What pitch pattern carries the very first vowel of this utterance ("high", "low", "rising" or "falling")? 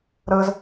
high